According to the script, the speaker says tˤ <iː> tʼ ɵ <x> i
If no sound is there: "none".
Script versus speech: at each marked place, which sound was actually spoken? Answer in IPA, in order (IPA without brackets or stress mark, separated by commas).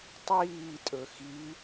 iː, x